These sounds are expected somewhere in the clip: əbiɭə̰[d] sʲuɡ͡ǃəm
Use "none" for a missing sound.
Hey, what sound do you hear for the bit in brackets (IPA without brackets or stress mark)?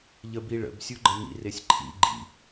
b